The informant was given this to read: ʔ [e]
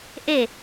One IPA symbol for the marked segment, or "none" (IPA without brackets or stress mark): e